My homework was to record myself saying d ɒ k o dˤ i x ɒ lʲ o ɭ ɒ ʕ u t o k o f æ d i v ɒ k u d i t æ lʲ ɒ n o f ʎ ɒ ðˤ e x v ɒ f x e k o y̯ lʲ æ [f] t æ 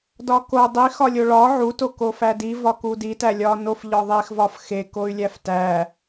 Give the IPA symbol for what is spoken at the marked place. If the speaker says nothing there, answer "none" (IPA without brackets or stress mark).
f